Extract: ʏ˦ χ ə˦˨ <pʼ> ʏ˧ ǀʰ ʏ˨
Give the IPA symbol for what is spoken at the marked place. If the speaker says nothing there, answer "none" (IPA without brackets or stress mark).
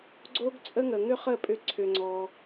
pʼ